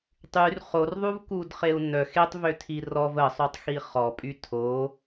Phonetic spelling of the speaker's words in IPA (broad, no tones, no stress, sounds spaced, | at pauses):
tˤ y r χ o r ðˤ u v k u d χ e u̯ n œ x e tˤ v ø tʰ i r ɔ v ə sˤ y tˤ x i χ ɔ pʼ y tʰ o